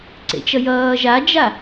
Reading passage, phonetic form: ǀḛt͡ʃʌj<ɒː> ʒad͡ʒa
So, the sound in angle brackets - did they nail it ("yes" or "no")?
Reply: no